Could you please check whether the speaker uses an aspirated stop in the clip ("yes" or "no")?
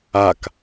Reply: no